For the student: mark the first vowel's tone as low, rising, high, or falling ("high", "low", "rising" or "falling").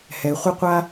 low